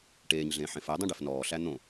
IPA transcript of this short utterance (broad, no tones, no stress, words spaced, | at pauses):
ʈeːɲɮẽːħ ẽfɛdˤũ ɖefnɔːɬæ n̪õ